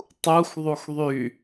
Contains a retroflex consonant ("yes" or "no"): no